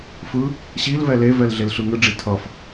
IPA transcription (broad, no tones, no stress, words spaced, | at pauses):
fɯ | ɕilvɛ levɛl ɮelɬɯŋɯɖ͡ʐi tʰʌf